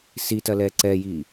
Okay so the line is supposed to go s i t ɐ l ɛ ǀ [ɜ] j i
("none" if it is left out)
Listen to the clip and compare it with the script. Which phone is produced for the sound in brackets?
ɛ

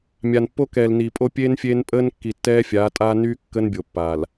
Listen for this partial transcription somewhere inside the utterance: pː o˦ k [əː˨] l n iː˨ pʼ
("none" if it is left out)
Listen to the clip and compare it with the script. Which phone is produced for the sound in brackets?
ɛː˨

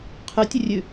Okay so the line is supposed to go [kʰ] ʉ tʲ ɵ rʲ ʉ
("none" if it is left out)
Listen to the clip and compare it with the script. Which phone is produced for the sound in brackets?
qʰ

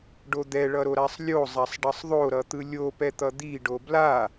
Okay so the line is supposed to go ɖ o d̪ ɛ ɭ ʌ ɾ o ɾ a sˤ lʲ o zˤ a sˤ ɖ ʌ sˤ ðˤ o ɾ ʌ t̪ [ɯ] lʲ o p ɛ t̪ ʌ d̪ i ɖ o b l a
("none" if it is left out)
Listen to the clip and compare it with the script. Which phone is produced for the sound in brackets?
ɯ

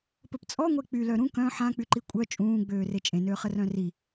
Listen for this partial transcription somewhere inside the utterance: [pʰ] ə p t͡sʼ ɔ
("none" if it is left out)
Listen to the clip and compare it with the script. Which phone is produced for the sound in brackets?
p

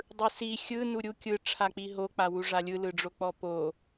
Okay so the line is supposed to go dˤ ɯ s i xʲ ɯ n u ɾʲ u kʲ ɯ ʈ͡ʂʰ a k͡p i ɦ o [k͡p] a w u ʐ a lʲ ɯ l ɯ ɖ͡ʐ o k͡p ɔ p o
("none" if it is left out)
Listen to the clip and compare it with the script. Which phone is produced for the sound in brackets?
k͡p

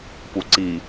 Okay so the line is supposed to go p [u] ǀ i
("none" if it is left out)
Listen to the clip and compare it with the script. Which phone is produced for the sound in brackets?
u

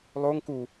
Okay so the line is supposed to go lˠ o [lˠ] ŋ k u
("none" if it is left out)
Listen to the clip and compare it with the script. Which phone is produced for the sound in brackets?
none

